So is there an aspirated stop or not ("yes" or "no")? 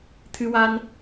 yes